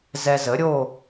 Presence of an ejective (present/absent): absent